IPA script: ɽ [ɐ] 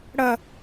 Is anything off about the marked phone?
no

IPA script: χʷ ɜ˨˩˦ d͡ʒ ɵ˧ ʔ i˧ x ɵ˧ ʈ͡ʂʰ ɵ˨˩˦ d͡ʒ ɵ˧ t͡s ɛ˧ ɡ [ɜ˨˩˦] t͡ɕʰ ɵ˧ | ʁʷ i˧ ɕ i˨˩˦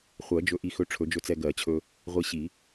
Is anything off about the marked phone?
no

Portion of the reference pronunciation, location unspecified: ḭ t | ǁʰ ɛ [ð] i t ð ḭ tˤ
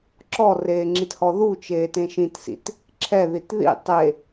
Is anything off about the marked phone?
no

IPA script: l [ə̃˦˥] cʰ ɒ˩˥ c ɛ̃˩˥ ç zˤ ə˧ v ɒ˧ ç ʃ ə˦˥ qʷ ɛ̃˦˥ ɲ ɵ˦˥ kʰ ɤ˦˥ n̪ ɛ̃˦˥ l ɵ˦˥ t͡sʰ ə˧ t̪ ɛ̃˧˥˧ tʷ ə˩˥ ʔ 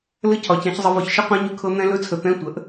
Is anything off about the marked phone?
yes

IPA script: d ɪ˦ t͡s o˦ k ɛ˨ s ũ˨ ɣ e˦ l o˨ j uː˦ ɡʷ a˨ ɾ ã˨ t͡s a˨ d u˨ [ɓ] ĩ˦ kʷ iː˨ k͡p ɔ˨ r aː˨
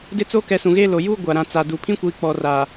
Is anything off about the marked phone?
yes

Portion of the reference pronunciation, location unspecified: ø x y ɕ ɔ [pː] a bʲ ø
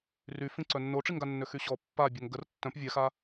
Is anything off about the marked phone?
no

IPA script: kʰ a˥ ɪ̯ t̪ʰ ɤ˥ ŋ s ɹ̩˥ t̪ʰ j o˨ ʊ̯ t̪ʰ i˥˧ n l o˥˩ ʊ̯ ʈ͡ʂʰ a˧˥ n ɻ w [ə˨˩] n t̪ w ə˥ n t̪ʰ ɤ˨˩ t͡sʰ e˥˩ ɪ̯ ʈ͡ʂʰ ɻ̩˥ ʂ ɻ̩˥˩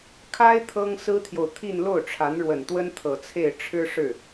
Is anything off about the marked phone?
no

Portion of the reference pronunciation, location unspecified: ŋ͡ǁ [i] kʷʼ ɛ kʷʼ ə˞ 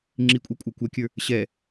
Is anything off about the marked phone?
no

